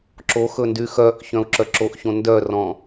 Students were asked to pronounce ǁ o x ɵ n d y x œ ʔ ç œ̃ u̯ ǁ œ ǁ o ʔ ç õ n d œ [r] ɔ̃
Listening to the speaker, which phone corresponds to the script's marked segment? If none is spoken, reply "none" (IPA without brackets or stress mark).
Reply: r